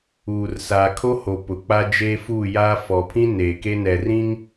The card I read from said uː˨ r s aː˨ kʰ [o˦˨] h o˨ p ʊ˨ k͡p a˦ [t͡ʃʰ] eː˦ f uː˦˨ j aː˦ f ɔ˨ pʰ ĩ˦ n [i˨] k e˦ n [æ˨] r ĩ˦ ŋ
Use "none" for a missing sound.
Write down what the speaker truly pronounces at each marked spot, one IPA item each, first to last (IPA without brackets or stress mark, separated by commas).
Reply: o˦, d͡ʒ, e˨, ɛ˨